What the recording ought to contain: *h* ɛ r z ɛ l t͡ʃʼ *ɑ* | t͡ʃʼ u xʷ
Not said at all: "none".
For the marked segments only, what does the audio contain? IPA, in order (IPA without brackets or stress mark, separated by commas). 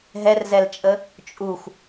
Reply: ɦ, ə